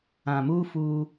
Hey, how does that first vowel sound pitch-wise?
low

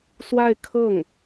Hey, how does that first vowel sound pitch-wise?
falling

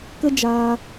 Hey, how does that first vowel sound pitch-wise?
high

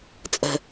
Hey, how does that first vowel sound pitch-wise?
low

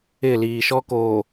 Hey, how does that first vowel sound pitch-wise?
falling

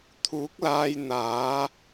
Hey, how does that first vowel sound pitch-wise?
rising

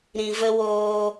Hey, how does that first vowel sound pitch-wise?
low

